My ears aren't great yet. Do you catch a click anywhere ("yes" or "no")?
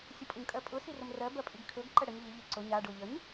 yes